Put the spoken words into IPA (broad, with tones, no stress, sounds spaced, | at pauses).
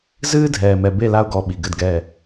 z ɨː˦ dʱ ɛː˨ m ɛ˨ b e˦˨ l a˦ ʊ̯ ɡ ɔ˨ ɓ i˨ ɡ ɘ˦˨ d ɡ ɛ˦˨